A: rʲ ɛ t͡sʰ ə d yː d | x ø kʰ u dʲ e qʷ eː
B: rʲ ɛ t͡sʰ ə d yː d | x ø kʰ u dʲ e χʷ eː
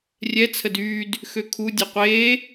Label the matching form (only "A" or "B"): A